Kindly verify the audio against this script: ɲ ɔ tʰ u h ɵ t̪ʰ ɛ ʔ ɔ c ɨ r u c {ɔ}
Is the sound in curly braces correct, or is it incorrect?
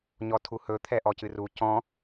incorrect